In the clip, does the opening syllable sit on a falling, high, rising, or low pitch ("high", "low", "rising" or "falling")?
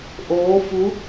rising